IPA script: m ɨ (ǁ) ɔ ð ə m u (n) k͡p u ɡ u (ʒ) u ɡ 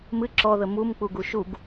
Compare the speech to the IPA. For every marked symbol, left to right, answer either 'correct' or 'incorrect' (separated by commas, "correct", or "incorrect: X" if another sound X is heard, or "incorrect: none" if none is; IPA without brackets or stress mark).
correct, incorrect: m, incorrect: ʃ